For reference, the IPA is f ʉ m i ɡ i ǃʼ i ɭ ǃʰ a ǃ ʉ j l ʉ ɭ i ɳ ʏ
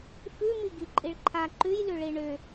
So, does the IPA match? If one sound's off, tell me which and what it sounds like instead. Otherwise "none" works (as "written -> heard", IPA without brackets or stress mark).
none